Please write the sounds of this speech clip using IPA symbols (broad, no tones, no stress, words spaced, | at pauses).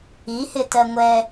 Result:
i hɪtɜŋʷɛ